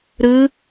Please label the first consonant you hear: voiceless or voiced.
voiced